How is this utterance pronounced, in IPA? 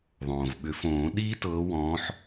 ðˤ õː˩ v ɓ ʏ˨˩˦ f õː˨˩˦ ɗ iː˦ t ɤː˨˦ w ɔ̃ː˨˦ ħ

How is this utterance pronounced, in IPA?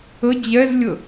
ə d͡ʑ ɛ z lʲ ə

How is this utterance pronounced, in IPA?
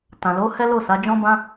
t ã˨ l o˨˦ h ɛ˦ l o˦˨ s a˨˦ d͡ʒ ɔ̃˦ b ã˦

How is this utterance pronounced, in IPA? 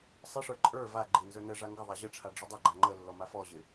sˤ ɪ ʂ ə˞ ǃʼ ə˞ v a ɡ͡ǃ ɪ n z ə˞ n ə ʐ a ŋ ɡ ə ðˤ a ʑ ə ʈ͡ʂʰ a ɖ͡ʐ ɪ dˤ ɪ ɡ͡ǃ a ŋ͡ǃ ə lː ɔ m a f ɔ ʑ ɪ

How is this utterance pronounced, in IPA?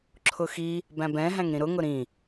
ǁʰ ʊ x i | b æ̃ b ɛ̃ ɦ æ̃ ŋ ɾ ĩ ɾ ʊ ŋ ʊ ɾ ĩ

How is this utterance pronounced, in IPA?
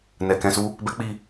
n ɛ˨ k ɛ̃˧ s u˦ | b ɛ˦ k͡p i˦˨

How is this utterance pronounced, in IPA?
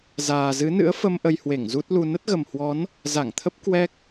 z aː˨˩ z ɨ˨˦ n ɨ̰˧˥ ə̯ f ə˧ m ʔ ə˧ j h w e˧˩ ŋ z u˦˥ t̚ l u˧ n ə˦˥ t̚ ɣ ə˨˩ m h w ɔ˨˦ n | z a˧˩ ŋ t̪ʰ ə˦˥ p̚ k w ɛ˦˥ k̚

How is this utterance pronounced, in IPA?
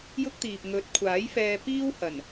j ʊ˥ k̚ t̪ iː˨ p̚ ŋ ɵ˨˥ t̚ kʷʰ aː˨˥ j f ɛː˧ p iː˥ w h ɐ˨˩ n

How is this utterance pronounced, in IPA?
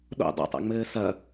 ɗ o̰ dˤ o̰ tˤ a̰ ŋ͡m ɘː s ɐ

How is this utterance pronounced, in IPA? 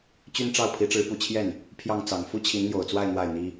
t͡ɕ y˥ n ʈ͡ʂ ɑ˥˩ ʊ̯ pʰ i˧˥ ʈ͡ʂ ɻ̩˧˥ p u˨˩ t͡ɕʰ j ɛ˥˩ n | pʰ j ɑ˥˩ ŋ t͡s ɑ˨˩ ŋ f u˥ t͡ɕʰ i˧˥ n n̪ j o˨˩ ʊ̯ t͡s w a˥˧ ɪ̯ n̪ w a˥˩ ɪ̯ n̪ i˥

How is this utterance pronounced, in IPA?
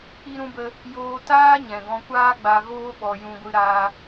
k͡p i˦ ɾ ũ˦ b ə˦ | j oː˧ t aː˦ ɲ ɛ̃˨ ɡ ɔ̃˧ kʷ aː˦ ɡ͡b a˧ ɣ oː˦ ɓ ɔ˧ j ũ˧ ɡʷ ɨ˧ ɾ aː˧

